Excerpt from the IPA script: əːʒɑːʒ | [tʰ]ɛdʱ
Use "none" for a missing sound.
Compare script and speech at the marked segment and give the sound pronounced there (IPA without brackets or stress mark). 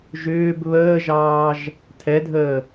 tʰ